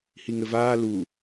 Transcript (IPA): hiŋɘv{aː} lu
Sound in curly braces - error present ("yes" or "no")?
no